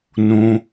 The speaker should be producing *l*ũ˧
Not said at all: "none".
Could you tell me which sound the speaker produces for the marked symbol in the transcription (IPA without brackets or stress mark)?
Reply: n